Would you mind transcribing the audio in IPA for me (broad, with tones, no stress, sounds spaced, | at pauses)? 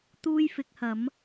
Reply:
t̪ uː˥ j f ɪ˨˥ k̚ h ɐ˨˥ m